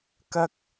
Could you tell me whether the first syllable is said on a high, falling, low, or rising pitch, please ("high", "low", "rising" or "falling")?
high